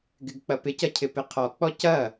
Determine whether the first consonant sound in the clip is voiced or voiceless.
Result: voiced